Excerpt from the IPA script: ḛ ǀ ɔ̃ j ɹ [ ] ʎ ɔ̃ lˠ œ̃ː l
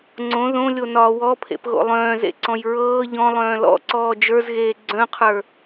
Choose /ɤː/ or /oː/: ɤː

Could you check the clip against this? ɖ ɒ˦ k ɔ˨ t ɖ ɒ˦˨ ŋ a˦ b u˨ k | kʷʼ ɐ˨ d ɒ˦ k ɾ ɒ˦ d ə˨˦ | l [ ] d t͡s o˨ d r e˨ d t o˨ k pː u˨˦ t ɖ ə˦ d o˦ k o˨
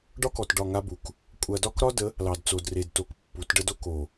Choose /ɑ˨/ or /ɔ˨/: ɑ˨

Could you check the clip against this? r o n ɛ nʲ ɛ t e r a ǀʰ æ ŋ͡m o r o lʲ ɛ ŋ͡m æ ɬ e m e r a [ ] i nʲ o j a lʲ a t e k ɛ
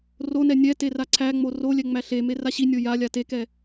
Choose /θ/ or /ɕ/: ɕ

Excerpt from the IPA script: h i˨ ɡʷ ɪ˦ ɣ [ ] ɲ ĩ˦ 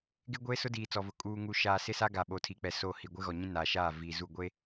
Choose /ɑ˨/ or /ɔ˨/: ɔ˨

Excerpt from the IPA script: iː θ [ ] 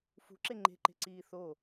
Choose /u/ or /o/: o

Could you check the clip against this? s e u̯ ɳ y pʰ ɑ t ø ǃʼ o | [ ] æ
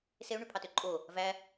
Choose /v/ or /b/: v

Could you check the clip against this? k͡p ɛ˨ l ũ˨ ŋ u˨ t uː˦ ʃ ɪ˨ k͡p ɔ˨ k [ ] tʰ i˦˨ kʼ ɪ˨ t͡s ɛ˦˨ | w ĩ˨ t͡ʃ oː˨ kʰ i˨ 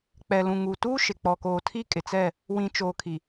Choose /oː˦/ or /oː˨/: oː˨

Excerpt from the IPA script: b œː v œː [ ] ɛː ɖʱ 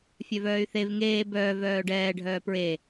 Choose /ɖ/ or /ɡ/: ɖ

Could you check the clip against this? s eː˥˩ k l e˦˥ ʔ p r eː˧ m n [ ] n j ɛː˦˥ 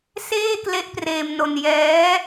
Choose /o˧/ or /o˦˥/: o˧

